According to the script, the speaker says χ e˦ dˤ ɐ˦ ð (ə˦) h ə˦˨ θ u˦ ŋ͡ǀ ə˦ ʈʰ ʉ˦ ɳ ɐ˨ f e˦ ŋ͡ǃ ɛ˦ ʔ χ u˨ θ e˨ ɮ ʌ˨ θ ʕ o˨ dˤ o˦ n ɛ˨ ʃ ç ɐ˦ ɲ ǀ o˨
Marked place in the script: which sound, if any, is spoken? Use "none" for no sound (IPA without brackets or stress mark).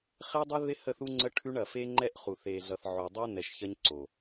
ɪ˦